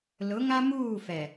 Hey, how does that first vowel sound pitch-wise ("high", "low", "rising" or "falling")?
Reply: rising